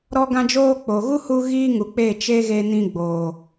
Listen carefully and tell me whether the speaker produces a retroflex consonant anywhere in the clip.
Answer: no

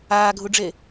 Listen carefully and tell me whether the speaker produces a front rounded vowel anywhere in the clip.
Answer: no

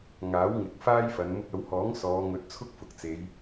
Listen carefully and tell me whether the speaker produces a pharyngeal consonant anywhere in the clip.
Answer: no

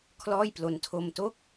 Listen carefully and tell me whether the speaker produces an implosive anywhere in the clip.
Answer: no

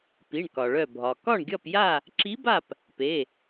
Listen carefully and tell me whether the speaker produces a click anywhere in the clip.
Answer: yes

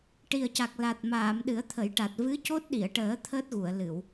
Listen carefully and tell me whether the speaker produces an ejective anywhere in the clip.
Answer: no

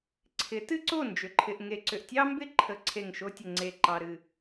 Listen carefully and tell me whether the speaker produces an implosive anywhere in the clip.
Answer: no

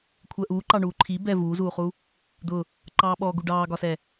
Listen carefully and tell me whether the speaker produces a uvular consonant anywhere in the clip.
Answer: yes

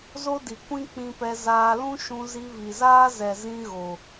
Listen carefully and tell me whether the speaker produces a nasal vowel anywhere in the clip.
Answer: yes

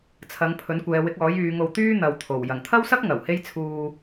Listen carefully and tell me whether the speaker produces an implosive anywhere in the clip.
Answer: no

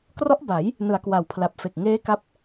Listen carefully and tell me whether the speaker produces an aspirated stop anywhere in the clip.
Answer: yes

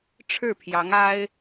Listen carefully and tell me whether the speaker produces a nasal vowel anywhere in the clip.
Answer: no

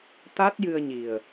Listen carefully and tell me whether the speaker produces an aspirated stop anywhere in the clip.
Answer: no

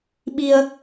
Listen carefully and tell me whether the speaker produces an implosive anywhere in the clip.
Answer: yes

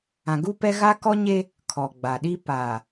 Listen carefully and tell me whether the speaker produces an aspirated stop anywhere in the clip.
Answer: yes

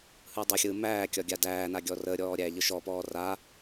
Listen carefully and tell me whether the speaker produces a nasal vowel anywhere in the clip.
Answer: no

